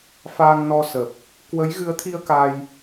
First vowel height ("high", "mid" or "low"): low